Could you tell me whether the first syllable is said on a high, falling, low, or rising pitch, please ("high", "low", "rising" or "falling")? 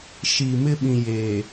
low